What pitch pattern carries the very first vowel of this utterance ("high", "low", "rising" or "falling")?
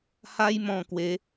high